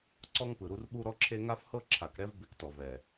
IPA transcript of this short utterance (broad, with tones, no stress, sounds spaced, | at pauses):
ǀ ɔ˦ ŋ p ɯ˨ ɾ u˦ r ɓ u˦ ɾ ɔ˦ ǁʰ e˦ ŋ a˦ f h ɤ˦ ǁʰ a˨ k ɾ ɛ˦ v b e˦ k t ɔ˨ v ɛ˨